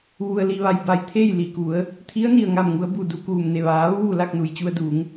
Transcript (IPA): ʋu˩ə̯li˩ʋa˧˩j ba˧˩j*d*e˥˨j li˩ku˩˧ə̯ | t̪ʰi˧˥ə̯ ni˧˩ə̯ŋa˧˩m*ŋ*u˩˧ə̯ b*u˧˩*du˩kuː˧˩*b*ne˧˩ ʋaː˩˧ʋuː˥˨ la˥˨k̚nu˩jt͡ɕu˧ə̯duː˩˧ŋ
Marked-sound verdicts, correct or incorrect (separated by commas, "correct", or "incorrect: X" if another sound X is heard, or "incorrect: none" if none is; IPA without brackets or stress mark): incorrect: t̪ʰ, correct, correct, incorrect: m